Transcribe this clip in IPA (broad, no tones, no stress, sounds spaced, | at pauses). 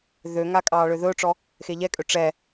ð ø ŋ a kʼ ɑː ɭ ø ð ɵː ʈ͡ʂ ɔ | x e ʎ ɛ kʼ ø ʈ͡ʂ ɛ